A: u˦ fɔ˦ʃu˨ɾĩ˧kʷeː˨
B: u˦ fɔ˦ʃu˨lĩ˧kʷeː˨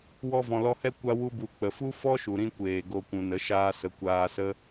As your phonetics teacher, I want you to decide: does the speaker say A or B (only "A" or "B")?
A